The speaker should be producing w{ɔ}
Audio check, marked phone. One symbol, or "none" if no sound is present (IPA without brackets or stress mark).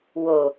o